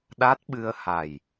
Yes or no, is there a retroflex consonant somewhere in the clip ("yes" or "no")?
no